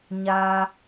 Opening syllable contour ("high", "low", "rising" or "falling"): high